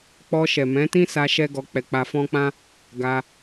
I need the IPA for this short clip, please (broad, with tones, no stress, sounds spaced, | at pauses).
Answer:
k͡p ɔ˧ ʃ ɛ˨ m ɛ̃˨˦ t ĩ˦ s a˧ ʃ ɛ˦ ɡ ɔ˧ k͡p ɛ˧ k͡p a˧ f ɔ̃˦ k͡p ã˦ | ɡ a˧